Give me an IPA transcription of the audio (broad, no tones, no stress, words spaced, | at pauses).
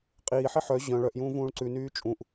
qʼiːħi ħœ ʑœ̃ ɭœʔjũː vũːɭǀʉnyː t͡ʃʼũʔ